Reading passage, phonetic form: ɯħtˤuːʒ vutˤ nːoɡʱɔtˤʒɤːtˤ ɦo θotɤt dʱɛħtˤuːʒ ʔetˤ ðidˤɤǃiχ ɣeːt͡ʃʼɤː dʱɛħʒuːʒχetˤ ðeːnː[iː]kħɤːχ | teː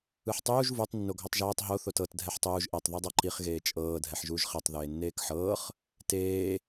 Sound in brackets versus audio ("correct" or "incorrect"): incorrect